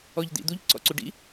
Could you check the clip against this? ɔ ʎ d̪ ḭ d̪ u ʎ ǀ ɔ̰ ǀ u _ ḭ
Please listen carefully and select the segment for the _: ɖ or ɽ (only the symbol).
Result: ɖ